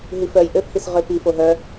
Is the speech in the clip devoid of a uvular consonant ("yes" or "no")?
no